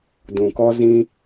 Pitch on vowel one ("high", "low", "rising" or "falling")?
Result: low